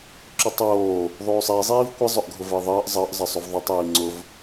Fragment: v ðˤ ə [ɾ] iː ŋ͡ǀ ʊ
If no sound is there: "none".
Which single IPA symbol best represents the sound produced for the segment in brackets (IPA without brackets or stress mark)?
tˤ